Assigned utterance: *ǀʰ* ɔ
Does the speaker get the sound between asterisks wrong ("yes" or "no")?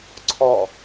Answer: no